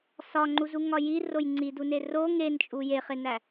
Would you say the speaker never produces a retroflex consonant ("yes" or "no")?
yes